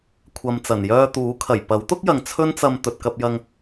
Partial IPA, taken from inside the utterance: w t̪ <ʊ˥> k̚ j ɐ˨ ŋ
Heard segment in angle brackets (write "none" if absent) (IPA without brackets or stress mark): ʊ˥